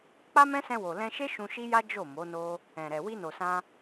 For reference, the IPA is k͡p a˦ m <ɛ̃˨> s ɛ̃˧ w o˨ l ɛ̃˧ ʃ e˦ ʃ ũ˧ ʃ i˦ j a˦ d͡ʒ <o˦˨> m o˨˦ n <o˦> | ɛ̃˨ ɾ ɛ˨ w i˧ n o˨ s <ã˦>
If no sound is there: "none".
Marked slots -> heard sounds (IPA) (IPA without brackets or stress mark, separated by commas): ɛ̃˦, o˦˨, o˦, ã˧